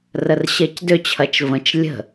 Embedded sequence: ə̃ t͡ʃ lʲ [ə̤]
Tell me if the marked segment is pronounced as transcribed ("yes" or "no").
yes